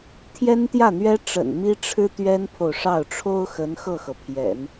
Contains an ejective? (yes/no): no